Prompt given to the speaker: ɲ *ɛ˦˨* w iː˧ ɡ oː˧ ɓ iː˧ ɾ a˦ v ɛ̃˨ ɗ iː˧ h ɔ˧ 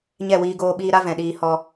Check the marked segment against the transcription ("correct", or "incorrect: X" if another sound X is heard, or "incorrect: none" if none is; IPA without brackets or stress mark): correct